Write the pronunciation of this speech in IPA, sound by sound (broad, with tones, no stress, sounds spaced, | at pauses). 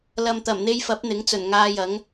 l ɐ˨ m t̪ ɐ˨˩ m n̪ e˧ j f ɐ˨˥ p̚ n̪ ɪ˨˥ ŋ t͡s ɵ˨˩ n ŋ aː˧ j ɐ˨˥ ŋ